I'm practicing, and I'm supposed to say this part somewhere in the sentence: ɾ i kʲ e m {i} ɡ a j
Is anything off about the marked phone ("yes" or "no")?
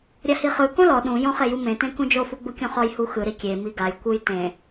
no